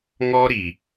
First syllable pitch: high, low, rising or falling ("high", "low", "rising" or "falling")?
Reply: high